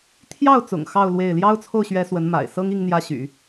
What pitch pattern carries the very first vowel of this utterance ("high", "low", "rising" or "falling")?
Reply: falling